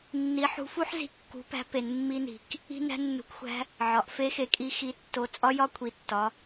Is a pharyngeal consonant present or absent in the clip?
present